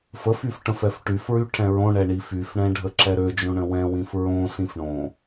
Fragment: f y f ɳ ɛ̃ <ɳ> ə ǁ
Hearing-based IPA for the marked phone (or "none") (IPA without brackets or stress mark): ɖʱ